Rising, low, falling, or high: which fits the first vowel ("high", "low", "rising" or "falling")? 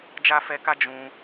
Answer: high